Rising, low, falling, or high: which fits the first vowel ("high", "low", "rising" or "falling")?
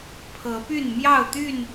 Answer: rising